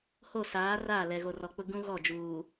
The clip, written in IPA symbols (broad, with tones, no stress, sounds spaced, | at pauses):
h o˦˨ s aː˨˦ r aː˦˨ l ɛ˨ ɣ o˨ r ɔ˨ k͡p ʊ˦ ɡ ũ˦ ɣ ɔ˦˨ d͡ʒ uː˨